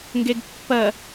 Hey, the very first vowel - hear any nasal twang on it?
no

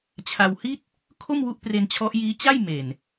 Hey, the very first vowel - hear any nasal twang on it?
no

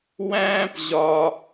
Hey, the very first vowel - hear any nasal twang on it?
yes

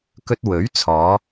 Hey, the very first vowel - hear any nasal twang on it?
no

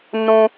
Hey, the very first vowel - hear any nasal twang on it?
yes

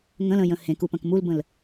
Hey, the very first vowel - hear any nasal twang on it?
yes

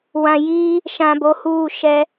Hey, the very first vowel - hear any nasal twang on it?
yes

